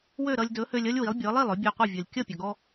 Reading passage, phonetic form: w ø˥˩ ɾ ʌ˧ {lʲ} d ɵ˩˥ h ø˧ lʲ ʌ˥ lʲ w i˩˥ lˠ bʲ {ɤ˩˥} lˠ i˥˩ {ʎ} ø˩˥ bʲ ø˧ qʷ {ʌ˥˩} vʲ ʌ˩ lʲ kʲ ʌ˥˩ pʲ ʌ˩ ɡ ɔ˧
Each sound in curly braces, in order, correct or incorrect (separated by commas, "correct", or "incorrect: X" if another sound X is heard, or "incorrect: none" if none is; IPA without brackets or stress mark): correct, correct, incorrect: lˠ, correct